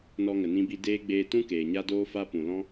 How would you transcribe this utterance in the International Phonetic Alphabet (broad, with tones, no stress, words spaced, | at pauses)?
nɔ˧ŋə˨nĩ˧bi˧ deː˦ ɡ͡beː˧tũ˦ keː˨ɲa˦doː˦fa˦ pũ˨lɔ̃˦